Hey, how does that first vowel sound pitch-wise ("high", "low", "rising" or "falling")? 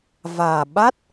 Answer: low